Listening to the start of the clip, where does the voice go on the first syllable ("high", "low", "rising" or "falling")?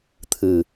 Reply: low